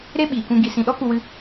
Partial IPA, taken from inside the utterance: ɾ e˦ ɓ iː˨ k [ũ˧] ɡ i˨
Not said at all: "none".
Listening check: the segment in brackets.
ũ˧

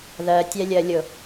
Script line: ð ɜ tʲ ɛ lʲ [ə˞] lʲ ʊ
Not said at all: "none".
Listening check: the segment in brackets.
ɜ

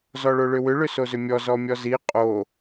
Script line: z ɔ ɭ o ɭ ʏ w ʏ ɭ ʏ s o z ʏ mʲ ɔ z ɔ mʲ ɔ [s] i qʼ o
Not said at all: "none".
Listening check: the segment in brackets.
z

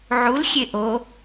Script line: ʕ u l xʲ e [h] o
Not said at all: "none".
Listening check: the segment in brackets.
ʔ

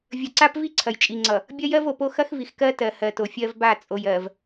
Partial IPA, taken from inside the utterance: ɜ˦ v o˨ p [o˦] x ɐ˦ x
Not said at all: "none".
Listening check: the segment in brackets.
o˦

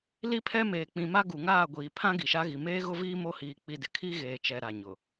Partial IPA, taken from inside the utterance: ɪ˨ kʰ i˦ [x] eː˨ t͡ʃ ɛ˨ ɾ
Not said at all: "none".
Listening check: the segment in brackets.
ɣ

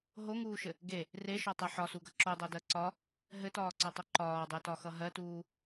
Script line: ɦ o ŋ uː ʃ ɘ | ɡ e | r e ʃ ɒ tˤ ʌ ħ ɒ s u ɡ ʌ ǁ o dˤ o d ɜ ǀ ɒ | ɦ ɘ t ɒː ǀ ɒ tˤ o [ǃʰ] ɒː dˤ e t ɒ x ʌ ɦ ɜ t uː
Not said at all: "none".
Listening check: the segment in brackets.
ǃ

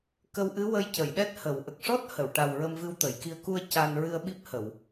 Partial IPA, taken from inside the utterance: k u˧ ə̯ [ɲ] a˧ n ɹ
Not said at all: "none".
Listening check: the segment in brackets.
c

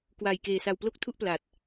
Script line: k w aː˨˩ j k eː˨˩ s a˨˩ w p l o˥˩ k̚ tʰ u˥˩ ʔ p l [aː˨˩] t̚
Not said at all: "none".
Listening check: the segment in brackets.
aː˨˩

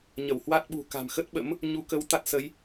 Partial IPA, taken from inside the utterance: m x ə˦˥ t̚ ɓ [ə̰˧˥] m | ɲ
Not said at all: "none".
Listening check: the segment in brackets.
ə̰˧˥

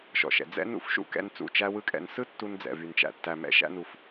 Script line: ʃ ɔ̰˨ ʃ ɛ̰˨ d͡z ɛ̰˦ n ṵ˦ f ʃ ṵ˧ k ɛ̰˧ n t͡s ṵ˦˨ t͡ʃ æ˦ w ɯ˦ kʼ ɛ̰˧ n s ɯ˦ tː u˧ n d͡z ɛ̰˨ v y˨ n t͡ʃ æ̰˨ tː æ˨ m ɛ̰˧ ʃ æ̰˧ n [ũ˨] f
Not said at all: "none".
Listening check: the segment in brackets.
u˨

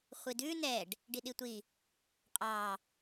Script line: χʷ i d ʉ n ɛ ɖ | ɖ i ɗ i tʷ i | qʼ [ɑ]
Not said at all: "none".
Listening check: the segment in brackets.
ɑ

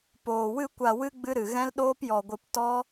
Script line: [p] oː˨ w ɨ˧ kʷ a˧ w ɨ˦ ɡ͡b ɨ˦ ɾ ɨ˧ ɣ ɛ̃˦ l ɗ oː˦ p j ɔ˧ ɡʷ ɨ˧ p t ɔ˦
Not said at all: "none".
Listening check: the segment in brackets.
p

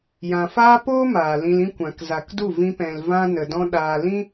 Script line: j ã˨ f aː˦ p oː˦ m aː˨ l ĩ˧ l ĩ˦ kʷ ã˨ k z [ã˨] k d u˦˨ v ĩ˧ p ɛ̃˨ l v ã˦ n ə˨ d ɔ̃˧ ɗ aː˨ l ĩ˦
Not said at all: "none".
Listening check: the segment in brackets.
a˨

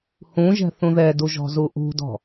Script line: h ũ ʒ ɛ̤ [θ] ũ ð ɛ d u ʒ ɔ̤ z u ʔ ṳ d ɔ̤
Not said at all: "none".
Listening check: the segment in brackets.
θ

